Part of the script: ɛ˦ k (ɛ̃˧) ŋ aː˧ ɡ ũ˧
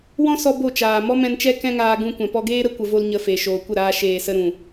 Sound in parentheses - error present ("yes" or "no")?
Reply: yes